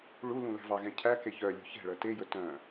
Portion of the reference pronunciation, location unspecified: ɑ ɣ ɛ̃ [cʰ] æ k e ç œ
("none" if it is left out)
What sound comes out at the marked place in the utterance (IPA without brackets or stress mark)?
cʰ